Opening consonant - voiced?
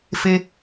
no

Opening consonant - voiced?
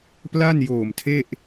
no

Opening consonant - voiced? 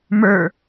yes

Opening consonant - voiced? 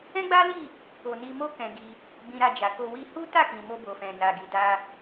yes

